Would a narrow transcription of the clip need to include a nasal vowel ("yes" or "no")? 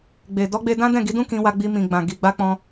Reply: yes